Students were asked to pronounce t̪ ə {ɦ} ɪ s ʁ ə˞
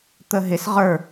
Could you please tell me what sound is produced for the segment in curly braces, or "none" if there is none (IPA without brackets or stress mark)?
ɦ